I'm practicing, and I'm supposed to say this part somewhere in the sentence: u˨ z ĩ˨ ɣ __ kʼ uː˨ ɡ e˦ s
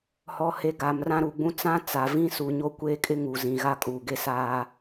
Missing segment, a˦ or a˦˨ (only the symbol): a˦